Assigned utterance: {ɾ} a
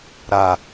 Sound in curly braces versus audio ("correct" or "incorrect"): correct